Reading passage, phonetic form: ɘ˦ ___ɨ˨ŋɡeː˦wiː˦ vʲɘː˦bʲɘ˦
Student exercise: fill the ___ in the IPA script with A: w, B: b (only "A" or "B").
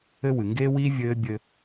A